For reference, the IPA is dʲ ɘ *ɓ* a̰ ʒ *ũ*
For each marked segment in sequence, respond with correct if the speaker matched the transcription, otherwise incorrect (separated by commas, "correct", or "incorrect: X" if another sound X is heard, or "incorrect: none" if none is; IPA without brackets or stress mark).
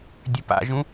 incorrect: p, correct